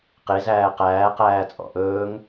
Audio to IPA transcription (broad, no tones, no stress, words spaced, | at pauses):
qezæː qæːqæːt͡sʼɔ̰ ʔɵːŋ